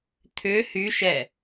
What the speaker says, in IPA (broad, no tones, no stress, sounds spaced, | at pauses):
t̪ʰ ʏ h y ʃ ɛ